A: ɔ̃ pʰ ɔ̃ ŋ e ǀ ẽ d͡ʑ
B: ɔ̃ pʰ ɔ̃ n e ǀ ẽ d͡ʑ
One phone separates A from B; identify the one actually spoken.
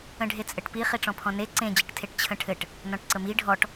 B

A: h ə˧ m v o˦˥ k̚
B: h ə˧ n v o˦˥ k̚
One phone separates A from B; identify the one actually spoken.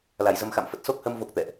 A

